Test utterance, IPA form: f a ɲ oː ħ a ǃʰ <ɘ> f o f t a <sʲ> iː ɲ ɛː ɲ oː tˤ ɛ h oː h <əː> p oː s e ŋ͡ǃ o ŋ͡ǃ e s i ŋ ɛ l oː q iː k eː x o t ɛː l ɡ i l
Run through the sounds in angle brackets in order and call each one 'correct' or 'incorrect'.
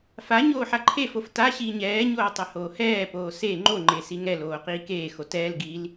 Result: incorrect: e, incorrect: ɕ, incorrect: ɛː

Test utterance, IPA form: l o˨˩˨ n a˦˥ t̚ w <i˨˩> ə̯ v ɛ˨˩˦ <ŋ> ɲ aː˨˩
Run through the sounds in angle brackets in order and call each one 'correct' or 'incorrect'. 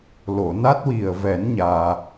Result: correct, incorrect: n

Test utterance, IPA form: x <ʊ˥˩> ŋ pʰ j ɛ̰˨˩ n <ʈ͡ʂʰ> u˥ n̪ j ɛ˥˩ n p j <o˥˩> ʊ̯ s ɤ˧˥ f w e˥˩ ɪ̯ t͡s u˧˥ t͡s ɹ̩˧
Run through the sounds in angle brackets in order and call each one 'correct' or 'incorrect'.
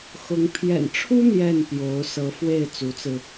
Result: incorrect: ʊ˧˥, correct, incorrect: o˧˥

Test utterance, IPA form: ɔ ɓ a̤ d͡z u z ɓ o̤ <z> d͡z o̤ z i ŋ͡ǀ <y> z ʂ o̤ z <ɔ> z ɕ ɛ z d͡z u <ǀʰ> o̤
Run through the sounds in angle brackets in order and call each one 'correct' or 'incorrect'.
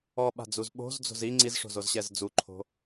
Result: correct, incorrect: i, incorrect: o, incorrect: ǃʰ

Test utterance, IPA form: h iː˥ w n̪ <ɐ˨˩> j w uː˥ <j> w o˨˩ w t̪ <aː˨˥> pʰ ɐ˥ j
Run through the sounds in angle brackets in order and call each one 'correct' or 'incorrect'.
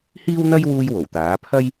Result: incorrect: ɐ˥, correct, correct

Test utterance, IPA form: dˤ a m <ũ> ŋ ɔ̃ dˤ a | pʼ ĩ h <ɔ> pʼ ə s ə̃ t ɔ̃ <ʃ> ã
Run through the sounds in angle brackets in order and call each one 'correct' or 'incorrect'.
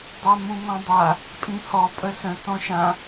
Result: correct, correct, correct

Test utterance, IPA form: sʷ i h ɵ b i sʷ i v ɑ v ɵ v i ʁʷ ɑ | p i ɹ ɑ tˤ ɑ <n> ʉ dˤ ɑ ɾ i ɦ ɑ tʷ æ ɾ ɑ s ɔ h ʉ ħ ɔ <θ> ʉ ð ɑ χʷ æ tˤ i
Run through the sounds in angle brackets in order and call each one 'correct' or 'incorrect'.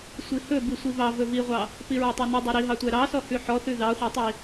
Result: correct, correct

